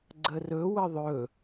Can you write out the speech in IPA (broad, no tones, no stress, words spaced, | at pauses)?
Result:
ɡ͡ǀərɵ wəðˤɵ